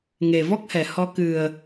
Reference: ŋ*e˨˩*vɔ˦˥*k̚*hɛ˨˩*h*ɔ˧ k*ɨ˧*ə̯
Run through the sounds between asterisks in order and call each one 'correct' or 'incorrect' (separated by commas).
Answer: correct, correct, correct, incorrect